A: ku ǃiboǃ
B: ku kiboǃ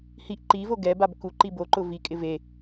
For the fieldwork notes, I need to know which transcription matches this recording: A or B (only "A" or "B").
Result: A